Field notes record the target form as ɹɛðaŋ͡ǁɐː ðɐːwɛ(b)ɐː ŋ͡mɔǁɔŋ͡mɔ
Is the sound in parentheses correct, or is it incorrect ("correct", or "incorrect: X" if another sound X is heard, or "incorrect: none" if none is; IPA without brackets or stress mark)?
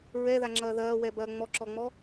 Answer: correct